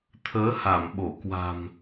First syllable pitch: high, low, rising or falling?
rising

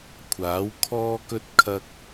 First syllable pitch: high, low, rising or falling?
rising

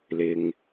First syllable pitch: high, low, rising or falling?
low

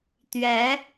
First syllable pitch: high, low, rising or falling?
rising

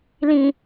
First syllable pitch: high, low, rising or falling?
low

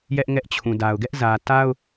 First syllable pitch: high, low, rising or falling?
high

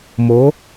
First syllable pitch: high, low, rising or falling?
rising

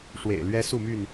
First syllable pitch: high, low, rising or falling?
low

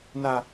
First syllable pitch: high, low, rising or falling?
high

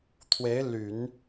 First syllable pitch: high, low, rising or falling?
rising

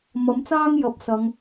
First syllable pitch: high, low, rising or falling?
rising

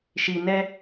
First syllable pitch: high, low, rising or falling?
low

